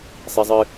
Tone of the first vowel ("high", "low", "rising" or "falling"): high